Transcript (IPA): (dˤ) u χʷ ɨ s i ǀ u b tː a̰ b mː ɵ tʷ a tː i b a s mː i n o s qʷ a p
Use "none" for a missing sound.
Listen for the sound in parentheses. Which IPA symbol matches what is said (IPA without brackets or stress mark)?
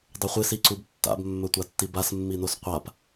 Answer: dˤ